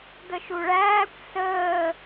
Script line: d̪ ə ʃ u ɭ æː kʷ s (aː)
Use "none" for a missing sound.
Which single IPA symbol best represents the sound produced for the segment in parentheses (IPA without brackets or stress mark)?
əː